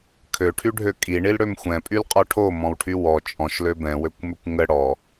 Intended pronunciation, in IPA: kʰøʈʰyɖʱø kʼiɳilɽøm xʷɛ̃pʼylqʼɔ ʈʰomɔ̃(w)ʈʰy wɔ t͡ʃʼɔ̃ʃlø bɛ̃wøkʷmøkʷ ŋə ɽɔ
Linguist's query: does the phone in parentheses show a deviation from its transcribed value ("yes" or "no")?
no